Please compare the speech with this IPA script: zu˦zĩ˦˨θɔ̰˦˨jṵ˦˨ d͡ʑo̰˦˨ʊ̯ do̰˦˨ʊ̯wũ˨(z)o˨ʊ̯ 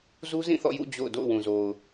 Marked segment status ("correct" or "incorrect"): correct